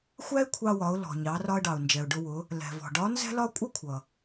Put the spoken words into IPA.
xʷ æ˥ ɪ̯ kʷʰ ɑ˧ w ɒ˩˧ ʊ̯ l ɔ̤˩ ɲ ɑ˩˧ r ɒ˧ ə̯ ɖ ɑ˩ ʊ̯ n d͡ʒ ɛ˩ ʊ̯ ɖ ʊ˧ w ʊ˩˧ | l ɛ̤˩ v ɔ̤˩ ɖ ɒ˧˥ n z ɛ̤˥ l ɒ˥ kʷʼ ʌ˥ kʷʰ ʌ˩

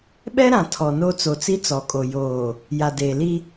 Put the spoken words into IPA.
ɓ ɛ˦ ɾ ã˨ tʰ ɔ˨ n o˦ t͡s o˨ t͡s i˦ t͡s ɔ˨ kʼ o˨ j oː˨ | j a˨ d eː˨ l i˦

